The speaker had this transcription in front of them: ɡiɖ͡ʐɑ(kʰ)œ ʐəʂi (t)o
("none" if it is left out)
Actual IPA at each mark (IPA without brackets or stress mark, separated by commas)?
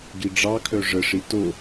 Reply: kʰ, t